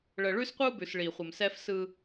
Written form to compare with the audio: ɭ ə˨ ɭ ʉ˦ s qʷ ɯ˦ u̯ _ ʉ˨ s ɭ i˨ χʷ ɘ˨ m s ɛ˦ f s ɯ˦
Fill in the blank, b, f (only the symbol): b